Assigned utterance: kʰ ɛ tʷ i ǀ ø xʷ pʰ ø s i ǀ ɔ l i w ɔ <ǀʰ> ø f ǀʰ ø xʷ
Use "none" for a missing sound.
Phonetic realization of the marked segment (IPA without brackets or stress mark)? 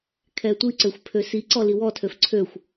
tʰ